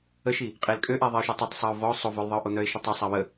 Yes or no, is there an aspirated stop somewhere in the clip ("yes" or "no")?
no